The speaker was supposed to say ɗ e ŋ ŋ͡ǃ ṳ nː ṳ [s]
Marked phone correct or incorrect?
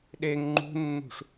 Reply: incorrect